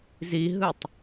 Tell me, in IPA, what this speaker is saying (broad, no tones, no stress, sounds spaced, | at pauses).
z i ɦ ɯ tˤ